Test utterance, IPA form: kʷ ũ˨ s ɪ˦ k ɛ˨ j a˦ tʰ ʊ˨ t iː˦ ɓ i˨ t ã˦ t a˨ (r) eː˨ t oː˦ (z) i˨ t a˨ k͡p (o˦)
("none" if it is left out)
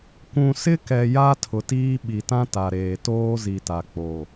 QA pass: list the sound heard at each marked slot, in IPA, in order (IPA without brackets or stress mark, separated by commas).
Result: ɾ, z, o˨